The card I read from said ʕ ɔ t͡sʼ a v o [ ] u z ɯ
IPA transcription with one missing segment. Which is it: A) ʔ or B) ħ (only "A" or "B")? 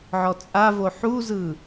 B